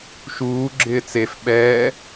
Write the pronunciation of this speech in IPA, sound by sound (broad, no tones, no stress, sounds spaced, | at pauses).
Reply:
ʃ uː ɡ͡ǁ ɪː t͡s e f ɓ ɛː